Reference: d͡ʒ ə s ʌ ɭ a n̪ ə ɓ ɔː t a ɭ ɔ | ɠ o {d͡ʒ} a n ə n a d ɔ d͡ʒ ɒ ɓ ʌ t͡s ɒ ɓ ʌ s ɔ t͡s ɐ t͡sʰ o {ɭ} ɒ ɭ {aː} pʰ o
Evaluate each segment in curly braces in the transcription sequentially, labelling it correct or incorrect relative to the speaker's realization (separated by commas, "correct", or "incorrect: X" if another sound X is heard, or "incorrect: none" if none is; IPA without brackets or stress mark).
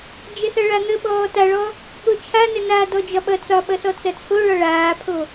incorrect: t͡ʃʰ, correct, correct